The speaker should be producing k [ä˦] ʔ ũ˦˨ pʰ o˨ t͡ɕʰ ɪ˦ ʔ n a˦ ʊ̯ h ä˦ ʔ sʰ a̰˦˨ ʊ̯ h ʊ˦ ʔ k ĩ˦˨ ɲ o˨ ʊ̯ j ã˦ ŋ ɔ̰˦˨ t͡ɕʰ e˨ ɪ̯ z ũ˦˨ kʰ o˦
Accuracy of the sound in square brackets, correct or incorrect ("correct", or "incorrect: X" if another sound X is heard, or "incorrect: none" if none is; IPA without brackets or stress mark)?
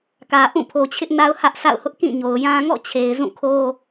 incorrect: ä˨